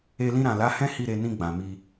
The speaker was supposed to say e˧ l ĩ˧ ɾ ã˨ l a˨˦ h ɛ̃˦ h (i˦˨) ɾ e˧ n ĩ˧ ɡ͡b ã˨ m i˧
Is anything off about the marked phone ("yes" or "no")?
no